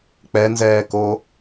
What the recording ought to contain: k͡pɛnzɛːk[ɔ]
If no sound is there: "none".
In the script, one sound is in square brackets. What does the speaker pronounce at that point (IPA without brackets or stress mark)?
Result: o